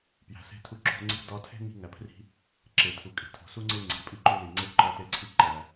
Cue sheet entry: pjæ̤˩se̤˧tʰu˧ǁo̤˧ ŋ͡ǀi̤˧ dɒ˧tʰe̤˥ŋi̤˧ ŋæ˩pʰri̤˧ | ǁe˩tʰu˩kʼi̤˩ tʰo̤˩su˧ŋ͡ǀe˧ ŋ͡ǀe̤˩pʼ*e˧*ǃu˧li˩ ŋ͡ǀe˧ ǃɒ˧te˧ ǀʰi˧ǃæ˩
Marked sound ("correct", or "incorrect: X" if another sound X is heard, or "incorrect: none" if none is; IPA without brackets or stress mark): incorrect: i˧